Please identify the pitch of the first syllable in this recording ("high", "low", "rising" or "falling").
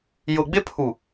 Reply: low